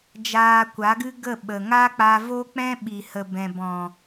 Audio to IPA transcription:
d͡ʒaː˧kʷa˨˦ɡɨ˦ ɡə˦˨ ɓə˨ ŋa˦k͡pa˧vo˦k͡pɛ̃˦ ɓi˨hə˨bɛ̃˨bɔ̃˨

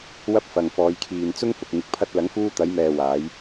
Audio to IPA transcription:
wɐ˥p̚ fɐ˨ŋfɔː˨˧jkʰiː˨n t͡sʊ˥ŋfʊ˨k̚ ŋɪ˨k̚pʰɐ˧t̚lɐ˨˧ŋfuː˧ t̪ɐ˨˧jmɛː˨ waː˨˧j

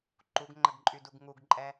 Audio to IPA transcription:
ǃuɡŋ͡ǃəɡǃʼyduɡ ŋuɡǃʼɛ

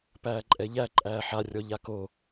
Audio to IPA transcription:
pæːǃʼɛʎæ ǃʼæːħa rʲɔʎako

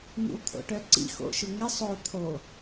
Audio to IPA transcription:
nḭwt̪ʰo̰ʈœǀḭ xo̰ʃʊŋɪ sˤo t̪ʰo

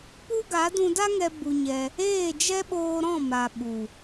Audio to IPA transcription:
pu˦ɡa˨˦ dũ˧da˦ŋɛ˧ bu˧ɲɛ˧ | eː˦˨d͡ʒɛ˦ɓoː˧ ɾɔ̃˦˨ma˨ ɓu˨

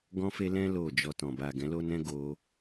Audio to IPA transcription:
ɡɔ̃˦fe˦ lɛ̃˦ lo˦˨ d͡ʒɔ˧tɔ̃˨ ba˨ ɡɛ̃˨˦lo˦nɛ̃˦ ɡo˧

